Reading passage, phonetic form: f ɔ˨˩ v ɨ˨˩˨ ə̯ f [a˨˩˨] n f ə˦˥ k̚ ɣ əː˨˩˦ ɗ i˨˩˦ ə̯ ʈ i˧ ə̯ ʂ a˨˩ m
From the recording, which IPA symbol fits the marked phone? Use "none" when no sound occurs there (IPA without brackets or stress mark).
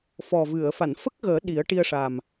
a˨˩˨